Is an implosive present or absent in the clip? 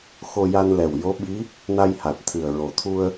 present